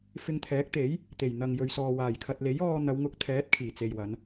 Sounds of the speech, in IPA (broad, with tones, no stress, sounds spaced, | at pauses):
f ɪ˧ ŋ t̪ʰ ɛː˨˥ k̚ t̪ e˨˥ j | t̪ e˨˩ j n̪ ɐ˨ ŋ j ɵ˨ ɥ s ɔː˨ w aː˨˩ j kʰ ɐ˨ t̚ l e˨˥ j ɔː˧ n̪ ɐ˨˧ w ŋ ʊ˧ k̚ t̪ʰ ɛː˨˥ t̚ kʰ iː˨˩ t͡s e˨ j w ɐ˨˧ n